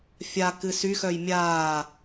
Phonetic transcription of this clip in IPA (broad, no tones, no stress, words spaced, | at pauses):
fʲakɨ syxœj mʲaː